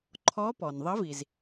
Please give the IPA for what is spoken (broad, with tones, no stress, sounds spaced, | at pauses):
ǃʰ ɔ˧˥ p ɔ˩ n ðˤ ə˧˥ v i˩ z